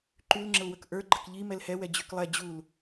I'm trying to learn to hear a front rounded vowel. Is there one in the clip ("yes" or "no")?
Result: yes